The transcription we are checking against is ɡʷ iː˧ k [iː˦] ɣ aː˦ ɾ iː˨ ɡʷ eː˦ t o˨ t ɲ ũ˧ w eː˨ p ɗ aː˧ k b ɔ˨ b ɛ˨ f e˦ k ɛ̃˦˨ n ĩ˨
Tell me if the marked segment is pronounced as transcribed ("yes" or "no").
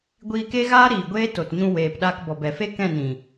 no